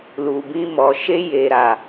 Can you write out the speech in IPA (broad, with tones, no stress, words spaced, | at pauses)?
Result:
lu˨bĩ˧mɔ˨ ʃe˧je˨ɾa˨